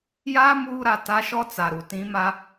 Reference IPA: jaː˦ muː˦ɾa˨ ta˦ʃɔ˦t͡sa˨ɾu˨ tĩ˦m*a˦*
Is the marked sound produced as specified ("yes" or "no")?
yes